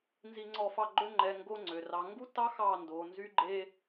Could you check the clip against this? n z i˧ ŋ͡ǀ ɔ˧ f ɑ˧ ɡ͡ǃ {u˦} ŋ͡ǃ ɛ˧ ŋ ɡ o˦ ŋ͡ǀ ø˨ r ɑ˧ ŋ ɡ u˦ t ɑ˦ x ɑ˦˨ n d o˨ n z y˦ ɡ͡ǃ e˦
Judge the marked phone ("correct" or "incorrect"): incorrect